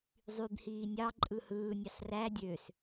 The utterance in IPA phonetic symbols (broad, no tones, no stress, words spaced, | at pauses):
zˤybhiː nʲɑ ǃʼɯhɯːnʲɑs ræ dʲøs